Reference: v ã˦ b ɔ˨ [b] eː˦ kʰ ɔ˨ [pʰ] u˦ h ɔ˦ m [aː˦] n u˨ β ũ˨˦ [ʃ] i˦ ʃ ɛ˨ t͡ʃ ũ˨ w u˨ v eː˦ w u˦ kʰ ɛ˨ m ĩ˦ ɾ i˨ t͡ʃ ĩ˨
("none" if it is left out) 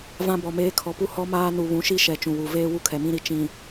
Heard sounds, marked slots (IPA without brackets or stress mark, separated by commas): m, p, aː˦, ʃ